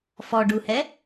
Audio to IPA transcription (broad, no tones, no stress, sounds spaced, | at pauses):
f ɔ ɖ u h ɛ